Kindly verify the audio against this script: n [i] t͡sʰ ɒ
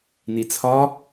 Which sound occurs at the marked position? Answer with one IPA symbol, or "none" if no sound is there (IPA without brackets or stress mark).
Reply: i